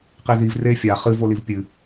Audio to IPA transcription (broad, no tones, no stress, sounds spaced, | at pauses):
q i z i v r e fʲ a χ ɨ v o l i v pʲ ɨ